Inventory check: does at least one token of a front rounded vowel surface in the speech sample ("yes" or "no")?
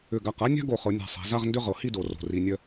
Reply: yes